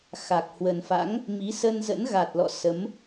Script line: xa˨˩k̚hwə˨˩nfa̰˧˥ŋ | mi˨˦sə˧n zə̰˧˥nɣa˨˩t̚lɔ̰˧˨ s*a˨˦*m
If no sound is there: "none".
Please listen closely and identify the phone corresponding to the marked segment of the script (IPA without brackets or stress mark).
ə˨˦